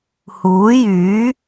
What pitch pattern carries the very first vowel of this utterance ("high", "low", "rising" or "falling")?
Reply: rising